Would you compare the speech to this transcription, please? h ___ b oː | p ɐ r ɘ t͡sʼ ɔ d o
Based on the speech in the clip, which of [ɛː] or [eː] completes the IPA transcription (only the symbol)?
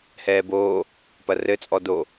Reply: ɛː